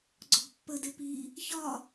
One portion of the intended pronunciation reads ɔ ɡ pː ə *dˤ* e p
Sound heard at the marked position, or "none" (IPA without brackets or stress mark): d